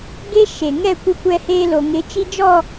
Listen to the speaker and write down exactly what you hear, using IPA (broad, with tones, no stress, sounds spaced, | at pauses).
ɡ e˦ ʃ e˨ ŋ ɛ˦˨ kʷ ɪ˦ kʷ ɛ˦ h eː˦ l o˨ ŋ ɪ˨˦ t͡ʃ i˦ d͡ʒ ɔ˦˨